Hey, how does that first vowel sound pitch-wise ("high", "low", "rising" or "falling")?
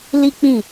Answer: high